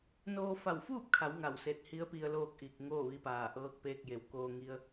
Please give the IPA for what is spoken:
n oː˧ f a˧˩ w f uː˥˨ p̚ kʰ a˩˧ w ŋ a˧˩ w s e˧ t̚ h i˧˥ ə̯ p i˧ ə̯ l oː˥˨ k̚ ʔ i˧˩ k̚ ŋ oː˥˨ ʋ i˧ p aː˧˩ ʔ ɤː˧ k̚ p eː˧ k̚ j e˩˧ w k oː˧ ŋ i˧ ə̯

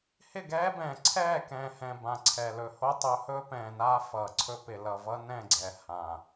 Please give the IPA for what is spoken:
h ɪ˦˨ ɡ ɛː˦ b ɛ̃ː˨ ǀʰ ɛː˦˨ k ɛ̃ː˨ h ɛ̃˨ b ã˨ ǀʰ ɛ˨ l ɵ˨ h o˦ tˤ ɵ˨˦ h ɵː˦ p ɛ̃ː˨ n aː˦ f ʌː˨ ǀʰ ɵ˦ p ɪ˨ l ʌ˨ v ʌ˦ n ɛ̃˦˨ ɡ͡ǀ ɛ˨ h ã˨

